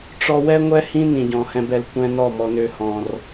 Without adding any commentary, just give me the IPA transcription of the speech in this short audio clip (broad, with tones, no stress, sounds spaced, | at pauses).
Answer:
ʈ͡ʂ ɔ˧ w ɛ˦ ŋʷ ɛ˦ h ĩ˦ n ĩ˨ ɟ ɔ̃˨ h ɛ̃˧ b ɛ˨ l kʷ ɛ̃˧ n ɔ˦˨ m ɔ˧ n ø˧ h ɔ̃˨ r